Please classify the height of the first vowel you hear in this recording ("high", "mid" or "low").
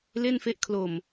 mid